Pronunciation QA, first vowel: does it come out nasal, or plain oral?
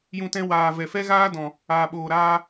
nasal